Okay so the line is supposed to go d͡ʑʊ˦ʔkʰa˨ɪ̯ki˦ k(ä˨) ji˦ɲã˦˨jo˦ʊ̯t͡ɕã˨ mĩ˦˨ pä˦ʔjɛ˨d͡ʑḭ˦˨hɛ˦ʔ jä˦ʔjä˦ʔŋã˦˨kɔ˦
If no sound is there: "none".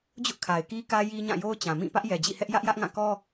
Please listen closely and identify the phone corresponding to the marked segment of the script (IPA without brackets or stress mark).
ä˦